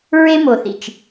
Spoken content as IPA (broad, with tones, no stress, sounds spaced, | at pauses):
ɹ e˦ m o˨ θ ḭ˨ t͡ʃ